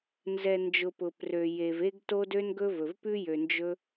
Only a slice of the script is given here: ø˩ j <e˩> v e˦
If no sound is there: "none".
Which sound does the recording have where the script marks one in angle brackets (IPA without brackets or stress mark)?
e˩